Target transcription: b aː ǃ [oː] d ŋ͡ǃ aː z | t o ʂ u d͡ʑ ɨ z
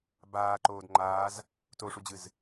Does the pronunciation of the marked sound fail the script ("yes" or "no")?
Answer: no